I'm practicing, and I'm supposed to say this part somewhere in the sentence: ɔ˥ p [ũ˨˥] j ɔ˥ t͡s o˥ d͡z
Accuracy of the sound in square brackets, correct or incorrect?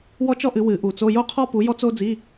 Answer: incorrect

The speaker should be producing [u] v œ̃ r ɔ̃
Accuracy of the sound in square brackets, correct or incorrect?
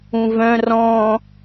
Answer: incorrect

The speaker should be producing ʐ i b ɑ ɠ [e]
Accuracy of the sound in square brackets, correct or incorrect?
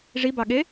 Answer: correct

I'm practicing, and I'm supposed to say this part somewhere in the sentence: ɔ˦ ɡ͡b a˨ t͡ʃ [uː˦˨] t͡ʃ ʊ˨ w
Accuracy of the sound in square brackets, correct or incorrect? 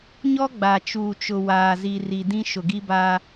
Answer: incorrect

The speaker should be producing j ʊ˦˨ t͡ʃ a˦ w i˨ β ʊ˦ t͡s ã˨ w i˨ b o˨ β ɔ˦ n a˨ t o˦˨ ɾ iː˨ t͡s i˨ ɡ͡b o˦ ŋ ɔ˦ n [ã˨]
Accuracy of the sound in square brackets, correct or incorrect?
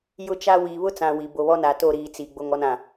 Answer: correct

